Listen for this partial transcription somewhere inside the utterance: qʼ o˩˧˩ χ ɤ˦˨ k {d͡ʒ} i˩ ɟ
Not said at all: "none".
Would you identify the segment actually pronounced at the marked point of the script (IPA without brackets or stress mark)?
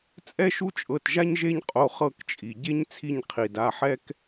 t͡ʃʼ